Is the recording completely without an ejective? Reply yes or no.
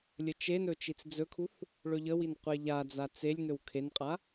no